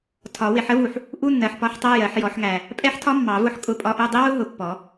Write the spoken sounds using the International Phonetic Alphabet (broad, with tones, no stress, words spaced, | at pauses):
tʰɒ˨˩˦ wɪ˨˩ħə˦˥vu˨˩ħ | ʔu˧˥˧nːɜ˨˩ħpɒ˧˥˧ħ tˤɜ˧˥˧jɜ˨˩˦ħ jɔ˨˩˦ħŋæ˨˩ | pʼɛ˦˥ħtʰɒ˦˥ mːɑ˨˩˦vʊ˧˥˧ħ kʼʊ˧˥˧pʼɒ˧˥˧ʔu˧˥˧ dˤi˦˥wʊ˦˥ ɦʊ˨˩ pːɔ˨˩˦